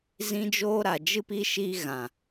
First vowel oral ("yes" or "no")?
no